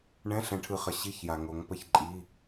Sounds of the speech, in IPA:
ɳ ɛ̃˧˥˧ ɬ ɛ̃˨˦ ʈʰ ɯ˨˦ χ ə˨ ɕ i˧˥˧ ç j a˨ ŋ o˨˦ ŋ p ə˥˨ ç ǃʼ i˧˥˧

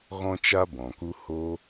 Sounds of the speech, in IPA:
ɣ ɔ̃˦ t͡ʃ a˦ b ɔ̃˨ k u˦ h o˧

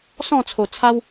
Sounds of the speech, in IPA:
s ɔ̃˥˧ t͡sʰ o˨˩ t͡sʰ a˦ w

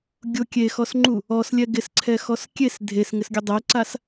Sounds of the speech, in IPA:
ɡʲ ʊ kʲ e x ɔ s ŋ͡ǃ u | ɔ s lʲ ɛ ɡ ɪ s ǀʰ ɛ x ɔ s kʲ e s dʱ e s ŋ ɪ s ɡʲ ʊ dˤ ɛ ǀ a s

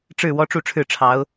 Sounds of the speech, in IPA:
ʈ͡ʂ ɻ̩˥˩ w ɔ˥ ʈ͡ʂ u˥˧ ʈ͡ʂʰ ɻ̩˥˩ ʈ͡ʂʰ ɑ˧˥ ʊ̯

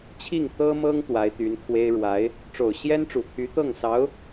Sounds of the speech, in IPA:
t͡ɕʰ i˥˩ ŋ t̪ ɤ˥ m ɤ˥ ŋ t̪ w a˧˥ ɪ̯ t̪ y˧˥ n kʰ w e˥ ɪ̯ ɻ w a˧˥ ɪ̯ | ʈ͡ʂ o˨˩ ʊ̯ ɕ j ɛ˥ n ʈ͡ʂ u˨˩ t̪ʰ y˧˥ t̪ ɤ˥˩ ŋ s ɑ˧˥ ʊ̯

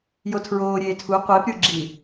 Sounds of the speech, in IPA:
j o tʰ ɹ oː ɾʲ eː tʰ u qʷ eː p ɾʲ uː ɡ͡ǁ iː

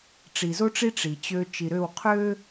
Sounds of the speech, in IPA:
ʈ͡ʂ i˨ z o˦ ʈ͡ʂ i˦ ʈ͡ʂ i˨ t͡ɕ ø˦ t͡ʃ i˨ ɾ ø˦˨ w qʰ ø˦

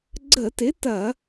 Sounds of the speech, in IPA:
ɡ͡ǀ ə˧˩˧ t ɪ˨˥ t ɐ˧˩˧

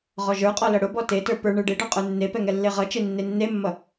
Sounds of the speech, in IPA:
ʁ ɔ ʒ ə˞ qʼ ɔ l ʌ ɽ ʊ b ɔ t e t ə˞ p ə˞ ɳ ə˞ ɖ e ɖ ɔ qʼ ə˞ nː e p ɛ ŋ ɛ lː e ʁ ʌ t͡ʃ e nː e nː e mː ʌ

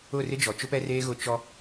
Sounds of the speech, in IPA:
ʊ˦˨ r ɪ˦ d͡ʒ ɔ˨ t͡ʃ ʊ˦ p ɛ˦ r eː˦ ɣ ʊ˦ t͡ʃ ɔ˦

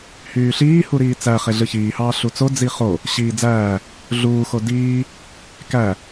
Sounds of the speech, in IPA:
h yː ɬ iː h u ɾ iː t͡s æ χ e ɮ ɯ ç iː h ɑː ɬ u t͡s o d͡z i χ o | ɕ iː d͡z æː | ɮ uː x o d iː | k æ

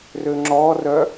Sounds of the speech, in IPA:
r ø ŋ͡ǁ ɔ r œ

